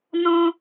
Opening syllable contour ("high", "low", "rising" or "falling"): high